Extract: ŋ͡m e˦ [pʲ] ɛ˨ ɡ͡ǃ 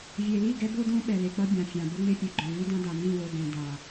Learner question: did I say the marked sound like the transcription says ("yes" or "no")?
yes